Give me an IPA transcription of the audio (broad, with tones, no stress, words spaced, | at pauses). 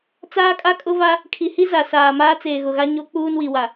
t͡saː˦kʼa˦kʼʊ˦va˦ | kʰi˨hi˦ za˨saː˨ maː˦t͡seː˨ɣʊ˨ɣa˦ ɲo˦ k͡puː˦nwi˨wa˨